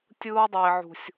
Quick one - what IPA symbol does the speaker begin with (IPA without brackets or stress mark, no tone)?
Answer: tʲ